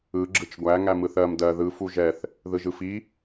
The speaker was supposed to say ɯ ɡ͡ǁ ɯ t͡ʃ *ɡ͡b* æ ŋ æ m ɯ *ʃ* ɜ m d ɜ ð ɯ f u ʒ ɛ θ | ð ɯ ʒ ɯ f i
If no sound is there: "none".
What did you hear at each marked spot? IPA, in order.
ɡʷ, θ

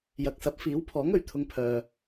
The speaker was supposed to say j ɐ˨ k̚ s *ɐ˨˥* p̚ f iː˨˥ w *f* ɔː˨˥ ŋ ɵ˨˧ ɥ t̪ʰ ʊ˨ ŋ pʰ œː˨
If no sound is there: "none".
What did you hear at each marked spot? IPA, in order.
ɐ˨˥, pʰ

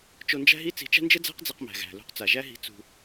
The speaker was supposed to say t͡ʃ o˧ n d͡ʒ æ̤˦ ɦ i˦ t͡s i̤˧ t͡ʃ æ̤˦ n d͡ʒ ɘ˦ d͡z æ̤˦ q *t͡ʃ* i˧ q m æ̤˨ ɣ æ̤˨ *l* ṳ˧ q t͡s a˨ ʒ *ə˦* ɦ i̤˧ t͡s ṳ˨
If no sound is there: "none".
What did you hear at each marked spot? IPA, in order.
d͡z, l, æ˦

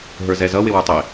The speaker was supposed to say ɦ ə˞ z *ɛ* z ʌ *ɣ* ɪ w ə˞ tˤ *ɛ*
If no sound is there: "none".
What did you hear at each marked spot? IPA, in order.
ɛ, w, ɪ

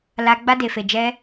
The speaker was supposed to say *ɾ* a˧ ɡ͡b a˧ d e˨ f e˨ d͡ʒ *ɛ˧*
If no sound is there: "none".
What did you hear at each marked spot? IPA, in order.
l, ɛ˧

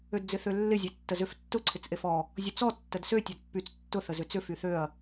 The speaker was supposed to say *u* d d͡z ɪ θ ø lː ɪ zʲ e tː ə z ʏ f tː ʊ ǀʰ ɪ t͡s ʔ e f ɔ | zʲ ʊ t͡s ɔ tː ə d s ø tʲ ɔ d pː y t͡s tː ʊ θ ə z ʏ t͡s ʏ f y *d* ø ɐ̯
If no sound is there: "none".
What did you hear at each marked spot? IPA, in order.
ø, θ

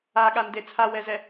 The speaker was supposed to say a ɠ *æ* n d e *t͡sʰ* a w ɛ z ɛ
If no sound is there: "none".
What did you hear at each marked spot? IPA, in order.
a, t͡sʰ

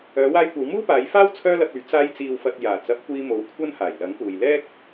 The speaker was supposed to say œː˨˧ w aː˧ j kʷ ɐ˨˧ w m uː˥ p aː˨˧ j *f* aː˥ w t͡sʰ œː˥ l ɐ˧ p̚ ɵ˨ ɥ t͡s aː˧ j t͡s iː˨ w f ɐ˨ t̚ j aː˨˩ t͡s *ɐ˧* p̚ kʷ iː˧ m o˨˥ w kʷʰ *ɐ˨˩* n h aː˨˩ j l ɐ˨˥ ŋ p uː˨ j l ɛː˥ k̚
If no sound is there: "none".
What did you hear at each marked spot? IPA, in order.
f, ɐ˨˥, ɐ˥

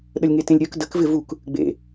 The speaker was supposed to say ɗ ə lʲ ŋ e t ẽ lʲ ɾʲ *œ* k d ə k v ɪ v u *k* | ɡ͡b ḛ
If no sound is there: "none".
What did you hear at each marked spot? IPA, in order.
œ, k

